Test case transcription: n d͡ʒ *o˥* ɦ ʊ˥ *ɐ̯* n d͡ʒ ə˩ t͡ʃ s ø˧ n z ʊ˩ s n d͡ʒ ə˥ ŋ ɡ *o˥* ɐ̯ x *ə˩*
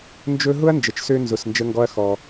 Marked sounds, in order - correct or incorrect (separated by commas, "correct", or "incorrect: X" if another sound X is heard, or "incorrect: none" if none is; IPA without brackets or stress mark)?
incorrect: ɵ˥, correct, incorrect: ɔ˥, incorrect: ɔ˩